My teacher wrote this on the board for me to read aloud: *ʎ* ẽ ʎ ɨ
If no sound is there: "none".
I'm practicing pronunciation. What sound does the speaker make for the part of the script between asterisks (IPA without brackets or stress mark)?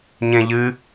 ɲ